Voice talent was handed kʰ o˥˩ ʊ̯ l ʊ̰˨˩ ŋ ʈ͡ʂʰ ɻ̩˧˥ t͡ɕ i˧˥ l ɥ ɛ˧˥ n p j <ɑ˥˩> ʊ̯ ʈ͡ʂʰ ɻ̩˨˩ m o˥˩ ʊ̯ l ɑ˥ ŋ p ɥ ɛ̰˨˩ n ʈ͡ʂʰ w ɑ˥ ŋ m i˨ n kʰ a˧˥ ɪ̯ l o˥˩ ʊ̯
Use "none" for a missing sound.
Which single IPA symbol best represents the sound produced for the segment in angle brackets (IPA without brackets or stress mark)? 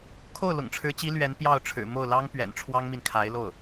ɑ˥˩